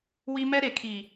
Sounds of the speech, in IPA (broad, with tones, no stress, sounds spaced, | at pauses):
w i˦ m ɛ˦ ɾ e˨ kʰ i˨